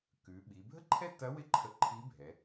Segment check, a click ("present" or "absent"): present